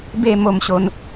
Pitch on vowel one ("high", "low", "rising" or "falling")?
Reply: falling